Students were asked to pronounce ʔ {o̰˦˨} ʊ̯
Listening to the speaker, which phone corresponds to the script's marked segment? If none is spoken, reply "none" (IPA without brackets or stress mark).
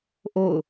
o̰˦˨